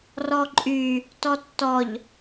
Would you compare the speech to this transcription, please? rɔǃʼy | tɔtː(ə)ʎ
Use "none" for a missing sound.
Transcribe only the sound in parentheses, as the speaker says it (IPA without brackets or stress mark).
ɔ